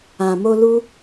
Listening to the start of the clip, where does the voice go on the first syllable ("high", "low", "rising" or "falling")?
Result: low